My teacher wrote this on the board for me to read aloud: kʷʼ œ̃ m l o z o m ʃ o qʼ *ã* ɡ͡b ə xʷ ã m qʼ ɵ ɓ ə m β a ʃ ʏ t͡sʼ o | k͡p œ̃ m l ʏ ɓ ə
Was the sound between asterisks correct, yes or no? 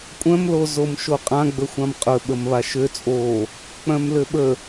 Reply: yes